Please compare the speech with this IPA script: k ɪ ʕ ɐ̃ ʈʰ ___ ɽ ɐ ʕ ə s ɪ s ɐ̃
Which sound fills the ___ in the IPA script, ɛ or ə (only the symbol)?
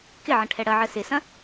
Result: ɛ